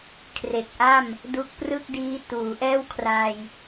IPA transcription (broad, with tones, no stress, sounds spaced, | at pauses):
kʰ r e˨˩ k̚ ʔ a˥˩ m | d u˦˥ k̚ p r ɯ˥˩ k̚ d iː˦˥ t uː˩˦ ʔ ɛː˥˩ w kʰ r a˧ j